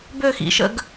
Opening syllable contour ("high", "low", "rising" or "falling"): falling